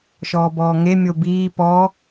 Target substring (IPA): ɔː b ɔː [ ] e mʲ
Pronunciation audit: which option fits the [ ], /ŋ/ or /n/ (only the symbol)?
ŋ